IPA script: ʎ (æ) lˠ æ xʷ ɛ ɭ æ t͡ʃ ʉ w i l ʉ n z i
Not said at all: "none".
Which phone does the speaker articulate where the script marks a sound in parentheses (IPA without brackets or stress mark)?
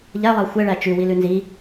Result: æ